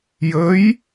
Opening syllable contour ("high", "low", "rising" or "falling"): rising